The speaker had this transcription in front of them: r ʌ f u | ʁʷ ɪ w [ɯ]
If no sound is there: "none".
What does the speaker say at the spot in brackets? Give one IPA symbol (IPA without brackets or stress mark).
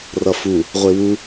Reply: u